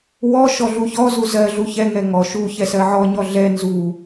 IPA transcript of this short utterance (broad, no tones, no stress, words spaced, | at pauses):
wɔʃɔ ɮuçɔzu zɜɮu çɛŋɛ ŋɔ ʃu çɛsɜʕɔɲɔ ɮɛ nzu